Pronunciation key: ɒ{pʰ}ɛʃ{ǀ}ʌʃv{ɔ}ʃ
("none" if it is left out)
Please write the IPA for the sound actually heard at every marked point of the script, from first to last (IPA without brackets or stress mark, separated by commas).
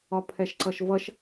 pʰ, ǀ, ʌ